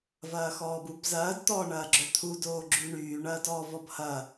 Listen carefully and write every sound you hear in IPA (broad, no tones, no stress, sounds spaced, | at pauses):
v ɐː x ɔː b u b z ɐː d t̪ ɔː ɳ ɐː ɡ͡ǁ œ t̪ʰ u d oː ɡ͡ǁ y ɳ yː ɳ ɐː d ɔː v ɔ b h ɐ